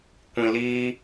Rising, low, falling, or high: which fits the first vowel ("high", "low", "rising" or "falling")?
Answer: low